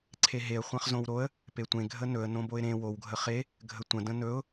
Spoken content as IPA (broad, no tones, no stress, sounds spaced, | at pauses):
ǀʰ e ɦ e ə̯ χʷ ã χ z õ w ɾ o ə̯ | p e tʷ ẽ ɡʱ ə n ɵ ə̯ n õ b o ɪ̯ ɾ ẽ w o w ɡʱ ə χ e | ɡʱ ə tʷ ə̃ d ə̃ n ɵ ʊ̯